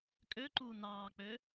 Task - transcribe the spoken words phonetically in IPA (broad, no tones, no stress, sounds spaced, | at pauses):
kʼ ø ǃ uː n ɑː k͡p øː